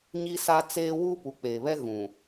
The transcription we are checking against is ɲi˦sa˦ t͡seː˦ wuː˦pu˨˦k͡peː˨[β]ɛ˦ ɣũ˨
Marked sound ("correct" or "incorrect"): correct